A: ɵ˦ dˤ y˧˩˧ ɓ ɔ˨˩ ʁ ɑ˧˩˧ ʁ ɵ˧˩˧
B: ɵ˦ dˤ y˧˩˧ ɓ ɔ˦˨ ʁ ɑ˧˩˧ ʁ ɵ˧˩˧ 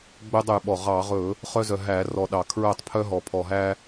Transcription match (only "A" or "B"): A